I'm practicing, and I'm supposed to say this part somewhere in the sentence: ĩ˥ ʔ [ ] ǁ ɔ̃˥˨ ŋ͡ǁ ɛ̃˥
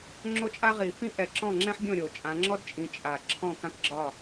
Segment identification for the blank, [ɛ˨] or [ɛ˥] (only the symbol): ɛ˨